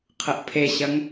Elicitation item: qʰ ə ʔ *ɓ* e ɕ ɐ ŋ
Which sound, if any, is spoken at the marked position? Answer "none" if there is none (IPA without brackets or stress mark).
pʰ